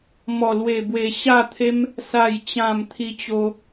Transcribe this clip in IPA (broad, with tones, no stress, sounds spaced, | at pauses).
m ɔ˨˩ l w e˨˩ b w e˨˩ ɕ a˥˧ t̪ʰ e˦ m | s a˨˩ j t͡ɕ ã˨˩ m t̪ʰ i˧ t͡ɕ o˧